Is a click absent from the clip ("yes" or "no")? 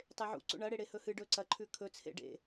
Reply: no